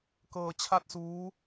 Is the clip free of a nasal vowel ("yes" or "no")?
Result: yes